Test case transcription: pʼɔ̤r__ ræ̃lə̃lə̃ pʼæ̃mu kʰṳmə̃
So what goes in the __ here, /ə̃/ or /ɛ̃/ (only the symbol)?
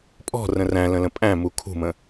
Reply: ə̃